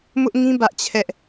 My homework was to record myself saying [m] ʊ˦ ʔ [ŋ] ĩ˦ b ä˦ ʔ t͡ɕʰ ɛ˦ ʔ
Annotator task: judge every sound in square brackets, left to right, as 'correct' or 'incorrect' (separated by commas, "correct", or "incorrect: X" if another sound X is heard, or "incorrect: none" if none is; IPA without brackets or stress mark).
correct, correct